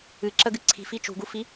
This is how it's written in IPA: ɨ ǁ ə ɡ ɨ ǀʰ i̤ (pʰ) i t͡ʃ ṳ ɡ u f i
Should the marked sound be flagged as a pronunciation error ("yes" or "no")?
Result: yes